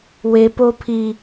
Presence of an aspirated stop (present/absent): present